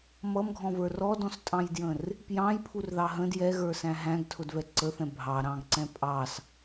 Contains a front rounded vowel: no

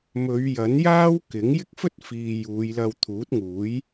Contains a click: no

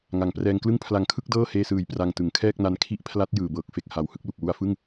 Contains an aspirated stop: yes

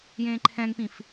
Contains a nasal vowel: yes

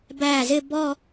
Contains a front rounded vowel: no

